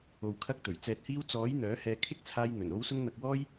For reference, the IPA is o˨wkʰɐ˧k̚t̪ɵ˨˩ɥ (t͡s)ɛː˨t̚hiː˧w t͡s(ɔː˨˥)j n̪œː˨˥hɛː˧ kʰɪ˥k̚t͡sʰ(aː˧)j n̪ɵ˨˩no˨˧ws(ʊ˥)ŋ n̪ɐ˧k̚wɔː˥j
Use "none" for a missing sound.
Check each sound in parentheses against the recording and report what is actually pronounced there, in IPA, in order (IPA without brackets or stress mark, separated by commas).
t͡s, ɔː˨˥, aː˧, ʊ˧